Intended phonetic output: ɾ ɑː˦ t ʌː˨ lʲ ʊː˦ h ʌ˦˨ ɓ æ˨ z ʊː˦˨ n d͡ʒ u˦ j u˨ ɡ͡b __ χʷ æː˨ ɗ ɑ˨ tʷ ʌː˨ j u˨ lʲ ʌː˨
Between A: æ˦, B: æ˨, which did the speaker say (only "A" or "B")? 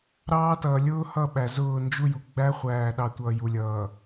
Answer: A